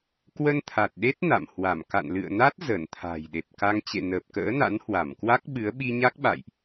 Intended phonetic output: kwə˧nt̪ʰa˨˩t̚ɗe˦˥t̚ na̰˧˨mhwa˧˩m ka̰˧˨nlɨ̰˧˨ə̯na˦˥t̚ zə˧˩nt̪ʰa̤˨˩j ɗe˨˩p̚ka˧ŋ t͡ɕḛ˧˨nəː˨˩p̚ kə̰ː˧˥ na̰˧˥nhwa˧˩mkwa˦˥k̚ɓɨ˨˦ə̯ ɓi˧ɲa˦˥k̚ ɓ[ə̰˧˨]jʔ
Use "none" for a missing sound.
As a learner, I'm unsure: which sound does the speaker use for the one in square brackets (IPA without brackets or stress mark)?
a̰˧˨